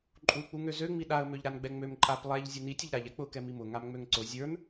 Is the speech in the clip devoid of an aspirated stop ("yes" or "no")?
yes